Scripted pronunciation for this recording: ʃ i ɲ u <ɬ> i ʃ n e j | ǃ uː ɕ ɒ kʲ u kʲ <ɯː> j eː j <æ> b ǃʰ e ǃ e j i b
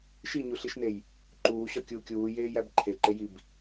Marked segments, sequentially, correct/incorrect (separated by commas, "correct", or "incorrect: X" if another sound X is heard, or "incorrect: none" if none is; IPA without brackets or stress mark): correct, incorrect: uː, correct